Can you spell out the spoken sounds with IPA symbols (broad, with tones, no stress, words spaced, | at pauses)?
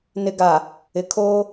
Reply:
nɪ˦ɡa˨ | ɪ˨kʰoː˦